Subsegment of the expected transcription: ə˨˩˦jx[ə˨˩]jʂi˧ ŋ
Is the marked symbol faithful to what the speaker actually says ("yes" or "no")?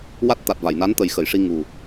no